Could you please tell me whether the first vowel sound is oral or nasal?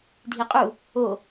oral